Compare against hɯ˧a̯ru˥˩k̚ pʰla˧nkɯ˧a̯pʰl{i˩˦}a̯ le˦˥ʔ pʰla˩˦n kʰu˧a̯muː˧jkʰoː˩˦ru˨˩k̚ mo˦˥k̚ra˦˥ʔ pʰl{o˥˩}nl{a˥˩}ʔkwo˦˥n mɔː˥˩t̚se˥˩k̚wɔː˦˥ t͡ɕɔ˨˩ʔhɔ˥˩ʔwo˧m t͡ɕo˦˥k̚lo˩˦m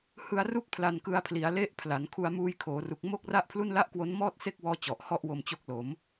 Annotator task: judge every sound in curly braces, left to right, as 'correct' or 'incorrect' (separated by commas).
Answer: correct, incorrect, correct